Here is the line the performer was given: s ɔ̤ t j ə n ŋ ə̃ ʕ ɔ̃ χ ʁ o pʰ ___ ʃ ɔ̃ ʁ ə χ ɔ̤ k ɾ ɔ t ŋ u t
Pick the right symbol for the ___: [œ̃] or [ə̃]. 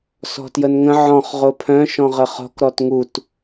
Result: œ̃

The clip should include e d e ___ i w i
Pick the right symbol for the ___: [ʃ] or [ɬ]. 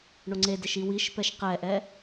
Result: ʃ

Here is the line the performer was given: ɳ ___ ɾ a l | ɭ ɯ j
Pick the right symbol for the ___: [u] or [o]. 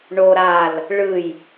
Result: o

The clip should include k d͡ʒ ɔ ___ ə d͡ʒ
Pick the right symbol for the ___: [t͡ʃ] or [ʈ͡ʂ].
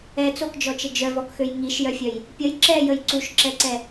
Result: t͡ʃ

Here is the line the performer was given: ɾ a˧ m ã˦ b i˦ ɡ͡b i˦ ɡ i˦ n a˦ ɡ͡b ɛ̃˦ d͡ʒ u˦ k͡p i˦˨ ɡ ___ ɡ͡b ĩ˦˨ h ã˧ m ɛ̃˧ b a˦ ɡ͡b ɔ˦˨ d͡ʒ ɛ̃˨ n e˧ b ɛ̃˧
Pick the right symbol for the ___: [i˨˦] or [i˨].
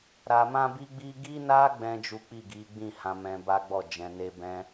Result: i˨˦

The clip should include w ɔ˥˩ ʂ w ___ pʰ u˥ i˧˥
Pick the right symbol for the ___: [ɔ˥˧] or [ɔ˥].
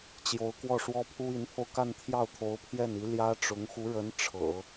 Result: ɔ˥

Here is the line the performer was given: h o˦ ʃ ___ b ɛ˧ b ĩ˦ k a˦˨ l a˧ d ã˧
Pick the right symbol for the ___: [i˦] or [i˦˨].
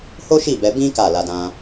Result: i˦˨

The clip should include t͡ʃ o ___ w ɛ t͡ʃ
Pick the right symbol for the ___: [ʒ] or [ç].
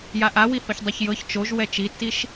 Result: ʒ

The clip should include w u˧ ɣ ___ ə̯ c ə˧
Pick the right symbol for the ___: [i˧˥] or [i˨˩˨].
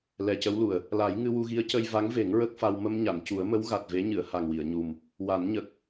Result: i˧˥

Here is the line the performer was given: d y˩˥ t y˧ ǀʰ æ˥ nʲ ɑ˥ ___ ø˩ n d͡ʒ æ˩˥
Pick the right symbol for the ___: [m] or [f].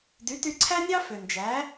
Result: f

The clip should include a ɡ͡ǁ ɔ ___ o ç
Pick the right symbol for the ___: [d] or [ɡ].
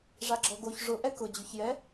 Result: ɡ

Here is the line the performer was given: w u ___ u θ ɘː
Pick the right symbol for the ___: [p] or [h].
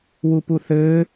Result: p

